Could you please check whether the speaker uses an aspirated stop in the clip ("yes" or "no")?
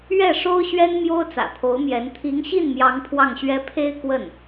yes